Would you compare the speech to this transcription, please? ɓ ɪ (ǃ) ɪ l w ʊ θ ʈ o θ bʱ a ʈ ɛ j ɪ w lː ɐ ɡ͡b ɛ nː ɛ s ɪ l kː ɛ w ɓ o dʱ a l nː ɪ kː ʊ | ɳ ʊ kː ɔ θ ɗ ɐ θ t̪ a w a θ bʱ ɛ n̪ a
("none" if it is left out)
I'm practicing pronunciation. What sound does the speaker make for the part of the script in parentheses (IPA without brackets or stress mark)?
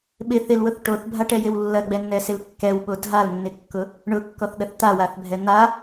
θ